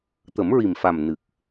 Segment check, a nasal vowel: absent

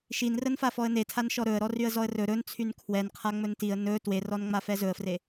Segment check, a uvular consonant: present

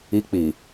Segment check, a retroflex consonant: absent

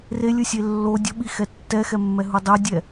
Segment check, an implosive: present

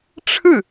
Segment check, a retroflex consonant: present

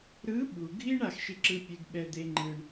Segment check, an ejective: absent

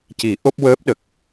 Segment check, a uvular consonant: absent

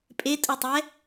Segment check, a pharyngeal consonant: absent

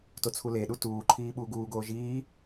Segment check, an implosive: present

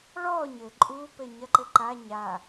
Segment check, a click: present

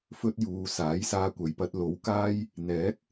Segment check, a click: absent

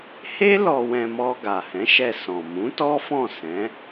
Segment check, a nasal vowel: present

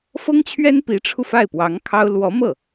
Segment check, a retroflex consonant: present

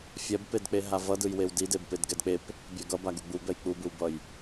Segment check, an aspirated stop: absent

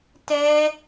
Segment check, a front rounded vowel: absent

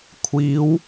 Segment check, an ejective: absent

